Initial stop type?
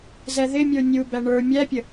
plain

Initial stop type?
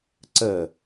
click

